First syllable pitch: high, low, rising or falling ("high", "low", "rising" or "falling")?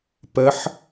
rising